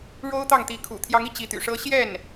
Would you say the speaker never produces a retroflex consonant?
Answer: no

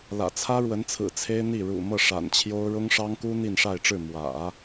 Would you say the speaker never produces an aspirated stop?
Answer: no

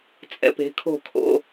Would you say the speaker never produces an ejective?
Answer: no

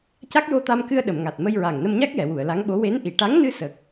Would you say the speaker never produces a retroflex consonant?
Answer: no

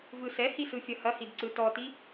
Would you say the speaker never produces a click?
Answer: no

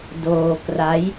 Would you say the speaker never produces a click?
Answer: yes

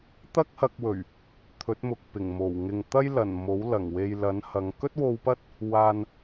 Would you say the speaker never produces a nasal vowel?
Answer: yes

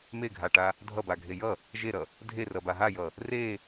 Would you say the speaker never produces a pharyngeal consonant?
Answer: yes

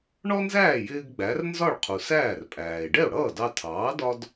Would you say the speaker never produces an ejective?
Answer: no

